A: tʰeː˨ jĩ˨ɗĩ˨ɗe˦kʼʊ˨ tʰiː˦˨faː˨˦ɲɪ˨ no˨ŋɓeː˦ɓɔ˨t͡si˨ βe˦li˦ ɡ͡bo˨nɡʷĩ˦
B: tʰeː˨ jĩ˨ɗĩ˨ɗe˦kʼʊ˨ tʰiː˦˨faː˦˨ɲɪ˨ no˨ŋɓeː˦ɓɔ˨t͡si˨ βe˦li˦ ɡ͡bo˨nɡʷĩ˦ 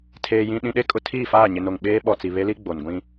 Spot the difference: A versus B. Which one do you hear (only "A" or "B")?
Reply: B